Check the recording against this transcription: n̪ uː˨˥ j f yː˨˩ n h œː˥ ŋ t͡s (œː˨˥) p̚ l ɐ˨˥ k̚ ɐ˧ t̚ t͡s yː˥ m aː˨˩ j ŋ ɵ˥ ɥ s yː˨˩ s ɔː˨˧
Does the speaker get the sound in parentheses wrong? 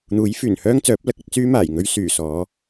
no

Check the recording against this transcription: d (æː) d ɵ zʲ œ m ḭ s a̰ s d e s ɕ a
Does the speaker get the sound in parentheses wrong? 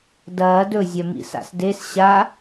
yes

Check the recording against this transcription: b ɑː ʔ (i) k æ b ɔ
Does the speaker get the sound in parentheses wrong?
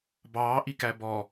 no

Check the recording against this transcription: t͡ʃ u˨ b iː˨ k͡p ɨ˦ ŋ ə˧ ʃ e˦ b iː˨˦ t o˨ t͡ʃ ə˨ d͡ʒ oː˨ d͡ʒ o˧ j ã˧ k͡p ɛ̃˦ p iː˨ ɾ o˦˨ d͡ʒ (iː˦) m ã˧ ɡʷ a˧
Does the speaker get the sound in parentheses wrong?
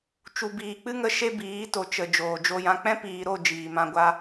yes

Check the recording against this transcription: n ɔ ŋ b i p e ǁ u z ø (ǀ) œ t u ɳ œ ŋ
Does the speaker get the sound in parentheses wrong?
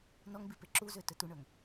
yes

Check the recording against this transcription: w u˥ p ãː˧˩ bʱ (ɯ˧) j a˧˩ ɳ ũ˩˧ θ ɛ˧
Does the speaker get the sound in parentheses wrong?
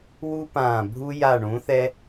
yes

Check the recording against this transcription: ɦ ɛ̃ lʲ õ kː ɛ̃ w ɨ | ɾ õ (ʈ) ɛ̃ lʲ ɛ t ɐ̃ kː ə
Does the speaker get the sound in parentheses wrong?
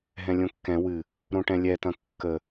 no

